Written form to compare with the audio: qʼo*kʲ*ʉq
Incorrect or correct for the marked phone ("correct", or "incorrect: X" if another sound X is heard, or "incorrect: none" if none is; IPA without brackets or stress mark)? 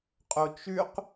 incorrect: t͡ʃ